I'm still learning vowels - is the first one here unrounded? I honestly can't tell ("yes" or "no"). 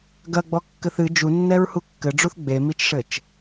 yes